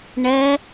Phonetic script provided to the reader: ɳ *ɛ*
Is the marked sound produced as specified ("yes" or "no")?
yes